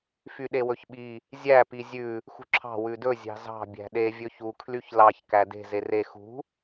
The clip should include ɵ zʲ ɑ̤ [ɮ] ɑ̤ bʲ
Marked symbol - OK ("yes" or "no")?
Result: no